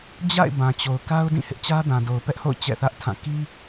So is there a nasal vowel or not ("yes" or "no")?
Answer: yes